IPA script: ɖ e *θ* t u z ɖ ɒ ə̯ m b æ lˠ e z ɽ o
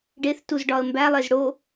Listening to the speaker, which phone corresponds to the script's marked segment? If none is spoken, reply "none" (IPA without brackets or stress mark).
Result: θ